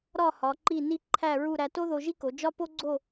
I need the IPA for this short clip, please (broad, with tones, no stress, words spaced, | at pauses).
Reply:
ɾɒ˥˧hɒ˩˧ ǃi˥˧ni˥ ǃʰæ˥˧ɹu˥˧ ɾæ˧to˥ðo˧ʒi˥ ko˩˧d͡ʒɒ˥po˥ɡ͡ǀo˥˧